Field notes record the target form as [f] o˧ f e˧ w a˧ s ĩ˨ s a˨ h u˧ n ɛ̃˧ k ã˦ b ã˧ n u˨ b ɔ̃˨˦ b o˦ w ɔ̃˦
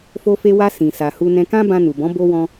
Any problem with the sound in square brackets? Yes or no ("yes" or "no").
no